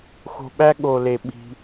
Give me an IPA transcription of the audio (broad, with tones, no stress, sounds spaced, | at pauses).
x o̤˧ ɓ æ˦ ɠ o˨ l e˨ ɓ i̤˦